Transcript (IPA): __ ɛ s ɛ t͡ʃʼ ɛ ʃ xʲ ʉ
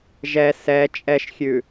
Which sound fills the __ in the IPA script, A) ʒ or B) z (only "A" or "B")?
A